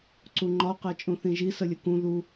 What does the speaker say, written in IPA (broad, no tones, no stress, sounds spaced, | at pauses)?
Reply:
ǀ u ŋ͡ǃ ɒ q æ t͡ʃʼ ũ θ ĩ ʒ i s ə lʲ ə k ũ ð u